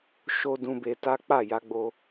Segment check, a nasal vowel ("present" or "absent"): present